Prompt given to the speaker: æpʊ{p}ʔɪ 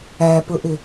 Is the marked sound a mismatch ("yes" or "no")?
yes